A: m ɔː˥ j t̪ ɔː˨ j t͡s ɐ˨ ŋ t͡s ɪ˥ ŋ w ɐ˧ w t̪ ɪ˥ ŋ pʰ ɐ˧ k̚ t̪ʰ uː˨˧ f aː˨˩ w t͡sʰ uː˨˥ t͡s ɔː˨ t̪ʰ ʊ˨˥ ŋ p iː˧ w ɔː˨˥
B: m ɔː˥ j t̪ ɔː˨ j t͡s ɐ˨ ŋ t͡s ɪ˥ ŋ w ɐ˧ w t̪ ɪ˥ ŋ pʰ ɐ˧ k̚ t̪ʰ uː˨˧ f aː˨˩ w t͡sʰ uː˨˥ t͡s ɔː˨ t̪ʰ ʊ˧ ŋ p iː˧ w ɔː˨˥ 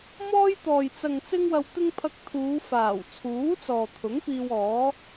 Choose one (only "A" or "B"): A